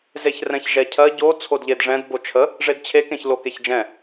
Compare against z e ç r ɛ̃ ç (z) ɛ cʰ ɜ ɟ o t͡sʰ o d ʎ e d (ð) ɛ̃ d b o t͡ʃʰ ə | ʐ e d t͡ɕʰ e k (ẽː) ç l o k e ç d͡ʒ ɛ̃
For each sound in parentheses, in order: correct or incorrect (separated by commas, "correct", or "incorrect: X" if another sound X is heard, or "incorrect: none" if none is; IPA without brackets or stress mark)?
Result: incorrect: ʒ, incorrect: ʐ, incorrect: ẽ